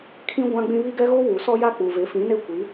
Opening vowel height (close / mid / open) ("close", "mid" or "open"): close